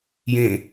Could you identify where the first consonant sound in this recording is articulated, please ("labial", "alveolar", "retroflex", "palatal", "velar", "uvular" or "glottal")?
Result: palatal